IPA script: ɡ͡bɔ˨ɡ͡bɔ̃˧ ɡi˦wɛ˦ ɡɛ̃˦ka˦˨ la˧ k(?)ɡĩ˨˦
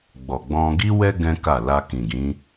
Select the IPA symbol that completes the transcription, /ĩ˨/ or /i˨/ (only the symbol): ĩ˨